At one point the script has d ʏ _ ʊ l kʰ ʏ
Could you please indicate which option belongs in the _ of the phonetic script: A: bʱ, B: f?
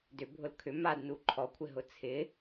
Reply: A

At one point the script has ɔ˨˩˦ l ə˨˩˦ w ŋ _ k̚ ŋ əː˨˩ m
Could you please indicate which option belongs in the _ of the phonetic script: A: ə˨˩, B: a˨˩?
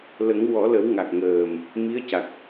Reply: B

